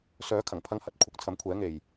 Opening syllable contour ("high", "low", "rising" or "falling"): rising